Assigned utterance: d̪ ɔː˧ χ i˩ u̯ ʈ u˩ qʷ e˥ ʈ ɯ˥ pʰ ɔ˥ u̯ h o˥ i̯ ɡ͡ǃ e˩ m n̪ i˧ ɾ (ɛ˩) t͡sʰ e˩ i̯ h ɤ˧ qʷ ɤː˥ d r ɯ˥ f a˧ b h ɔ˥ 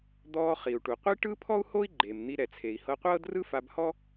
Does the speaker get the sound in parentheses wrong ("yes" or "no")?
no